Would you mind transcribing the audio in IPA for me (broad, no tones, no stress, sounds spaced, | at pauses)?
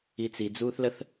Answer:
i t͡s i d͡z uː θ l ə θ